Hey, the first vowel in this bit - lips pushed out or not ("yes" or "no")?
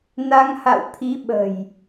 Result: no